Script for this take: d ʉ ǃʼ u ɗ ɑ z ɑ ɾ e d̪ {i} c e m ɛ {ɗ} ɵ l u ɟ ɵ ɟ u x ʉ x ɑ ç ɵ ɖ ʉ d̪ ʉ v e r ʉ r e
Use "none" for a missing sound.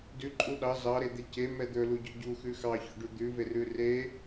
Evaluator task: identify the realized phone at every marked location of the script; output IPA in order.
e, d̪

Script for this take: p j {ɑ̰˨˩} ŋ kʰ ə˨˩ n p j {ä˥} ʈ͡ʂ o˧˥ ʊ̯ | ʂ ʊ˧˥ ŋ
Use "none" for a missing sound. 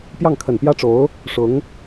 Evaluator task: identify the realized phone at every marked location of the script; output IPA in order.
ɑ˥˩, ä˥

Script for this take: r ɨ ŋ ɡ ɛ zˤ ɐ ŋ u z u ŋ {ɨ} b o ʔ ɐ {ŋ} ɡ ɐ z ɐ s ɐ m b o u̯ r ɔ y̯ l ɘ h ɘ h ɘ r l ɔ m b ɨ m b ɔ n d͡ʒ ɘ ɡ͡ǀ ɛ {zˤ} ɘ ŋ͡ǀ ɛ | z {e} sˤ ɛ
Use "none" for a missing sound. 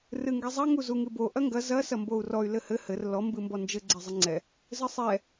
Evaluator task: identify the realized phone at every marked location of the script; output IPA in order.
ɨ, ŋ, zˤ, ɘ

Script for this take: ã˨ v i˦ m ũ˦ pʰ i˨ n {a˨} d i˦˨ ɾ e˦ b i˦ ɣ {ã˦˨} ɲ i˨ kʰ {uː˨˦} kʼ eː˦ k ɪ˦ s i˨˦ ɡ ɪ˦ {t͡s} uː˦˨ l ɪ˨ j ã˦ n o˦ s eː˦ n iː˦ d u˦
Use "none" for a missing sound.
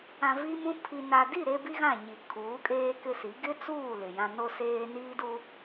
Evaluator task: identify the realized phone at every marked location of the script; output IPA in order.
a˨, ã˦˨, uː˨˦, t͡s

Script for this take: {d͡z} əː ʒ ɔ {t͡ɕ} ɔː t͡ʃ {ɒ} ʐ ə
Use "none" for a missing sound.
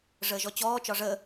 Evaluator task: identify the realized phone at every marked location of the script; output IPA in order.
ʐ, t͡ɕ, ɒ

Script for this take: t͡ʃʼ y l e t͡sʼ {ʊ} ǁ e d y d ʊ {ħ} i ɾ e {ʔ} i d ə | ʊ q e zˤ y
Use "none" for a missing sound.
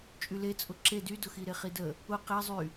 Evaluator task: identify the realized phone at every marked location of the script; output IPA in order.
ʊ, x, χ

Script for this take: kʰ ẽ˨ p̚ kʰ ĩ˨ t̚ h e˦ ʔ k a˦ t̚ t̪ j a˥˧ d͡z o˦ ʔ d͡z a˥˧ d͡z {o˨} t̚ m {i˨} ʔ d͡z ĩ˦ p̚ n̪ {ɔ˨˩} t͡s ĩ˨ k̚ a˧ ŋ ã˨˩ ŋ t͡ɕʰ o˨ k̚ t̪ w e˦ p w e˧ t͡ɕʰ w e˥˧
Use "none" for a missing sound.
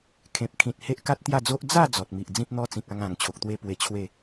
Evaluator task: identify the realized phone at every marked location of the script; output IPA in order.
ɔ˨, i˨, ɔ˦

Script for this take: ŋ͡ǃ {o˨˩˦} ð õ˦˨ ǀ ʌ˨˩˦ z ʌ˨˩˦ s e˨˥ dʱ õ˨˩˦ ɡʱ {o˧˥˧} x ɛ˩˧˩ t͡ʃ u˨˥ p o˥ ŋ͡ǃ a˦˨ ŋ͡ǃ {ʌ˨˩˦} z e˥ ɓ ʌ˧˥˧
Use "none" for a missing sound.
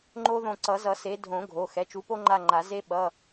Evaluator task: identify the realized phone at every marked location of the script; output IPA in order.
o˥, o˩˧˩, a˨˩˦

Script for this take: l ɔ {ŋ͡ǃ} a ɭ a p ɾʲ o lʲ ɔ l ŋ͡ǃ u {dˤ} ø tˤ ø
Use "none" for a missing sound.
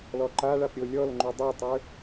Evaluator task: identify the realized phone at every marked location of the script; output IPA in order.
ǃ, dˤ

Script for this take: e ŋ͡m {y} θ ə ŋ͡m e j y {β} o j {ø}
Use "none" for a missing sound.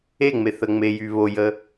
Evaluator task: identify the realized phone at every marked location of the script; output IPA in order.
e, β, ə

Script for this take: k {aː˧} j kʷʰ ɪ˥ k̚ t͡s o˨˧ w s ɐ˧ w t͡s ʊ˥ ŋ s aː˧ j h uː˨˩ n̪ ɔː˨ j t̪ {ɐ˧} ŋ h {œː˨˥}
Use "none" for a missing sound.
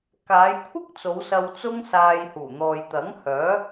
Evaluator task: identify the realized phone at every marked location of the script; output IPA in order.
aː˨˧, ɐ˨˥, œː˨˥

